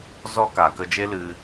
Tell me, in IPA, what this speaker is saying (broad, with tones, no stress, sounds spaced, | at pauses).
z ɔ˦ k a˨ k ə˧ d͡ʒ e˦ l ɨ˦